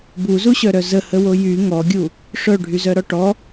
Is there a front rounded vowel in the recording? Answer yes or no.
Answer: yes